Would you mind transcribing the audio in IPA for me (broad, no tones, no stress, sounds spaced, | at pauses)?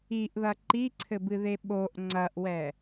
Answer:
i ʔ ð ɐ ǃ i ǀʰ ɘ b ɨ ð e ɓ o ʔ ŋ͡ǀ ɐ ʔ w ɛ